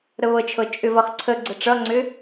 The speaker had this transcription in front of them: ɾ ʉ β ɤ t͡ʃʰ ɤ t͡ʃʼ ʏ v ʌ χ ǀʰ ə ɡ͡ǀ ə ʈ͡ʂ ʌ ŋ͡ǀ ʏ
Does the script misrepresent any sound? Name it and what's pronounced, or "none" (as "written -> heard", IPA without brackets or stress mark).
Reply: ʉ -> ə